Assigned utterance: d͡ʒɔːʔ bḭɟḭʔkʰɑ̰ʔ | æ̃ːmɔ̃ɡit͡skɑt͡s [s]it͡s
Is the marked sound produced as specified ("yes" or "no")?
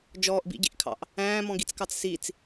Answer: yes